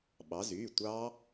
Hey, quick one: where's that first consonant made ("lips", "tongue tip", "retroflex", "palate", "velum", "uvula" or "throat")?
lips